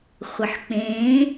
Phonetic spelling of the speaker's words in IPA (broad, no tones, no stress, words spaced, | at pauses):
χʷɘħk͡pẽː